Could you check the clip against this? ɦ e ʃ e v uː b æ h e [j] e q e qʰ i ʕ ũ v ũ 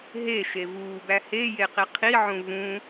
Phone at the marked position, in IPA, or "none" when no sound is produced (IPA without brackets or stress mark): j